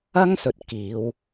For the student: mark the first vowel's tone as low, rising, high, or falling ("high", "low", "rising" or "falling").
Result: high